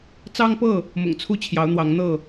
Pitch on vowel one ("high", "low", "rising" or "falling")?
high